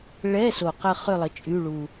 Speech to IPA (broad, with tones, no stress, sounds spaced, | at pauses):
ɭ ɛ˧˥˧ s o˨˩ q ə˦˨ χ ø˦˨ lˠ ə˩˥ t͡ʃʼ y˧˥˧ ɭ u˨˩